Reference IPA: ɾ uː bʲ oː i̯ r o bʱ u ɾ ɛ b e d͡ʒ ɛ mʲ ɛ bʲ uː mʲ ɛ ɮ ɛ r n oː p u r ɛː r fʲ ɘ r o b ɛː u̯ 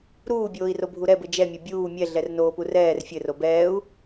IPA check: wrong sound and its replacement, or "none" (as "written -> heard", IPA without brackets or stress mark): e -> ɘ